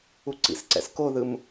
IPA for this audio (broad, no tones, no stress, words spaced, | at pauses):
uǀḭsǀɛ̰s koðɯm